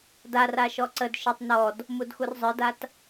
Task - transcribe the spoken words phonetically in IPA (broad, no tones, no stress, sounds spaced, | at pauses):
d a r a ʃ ɔ ǀ ə d ʃ ə tˤ n ɔ d | m u d x u r zˤ ə˞ d a t